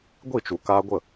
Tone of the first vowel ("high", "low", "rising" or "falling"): falling